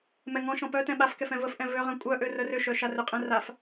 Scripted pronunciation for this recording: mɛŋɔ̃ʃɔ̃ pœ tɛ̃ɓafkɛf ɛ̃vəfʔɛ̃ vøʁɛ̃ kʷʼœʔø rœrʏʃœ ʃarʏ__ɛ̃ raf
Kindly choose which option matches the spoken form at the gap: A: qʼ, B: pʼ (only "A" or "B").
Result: A